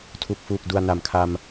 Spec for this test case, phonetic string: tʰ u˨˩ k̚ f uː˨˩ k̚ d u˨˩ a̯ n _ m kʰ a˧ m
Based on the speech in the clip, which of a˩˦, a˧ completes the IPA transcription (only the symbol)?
a˩˦